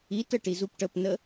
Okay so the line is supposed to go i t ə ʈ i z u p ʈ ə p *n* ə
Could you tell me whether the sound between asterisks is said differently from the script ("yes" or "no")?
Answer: no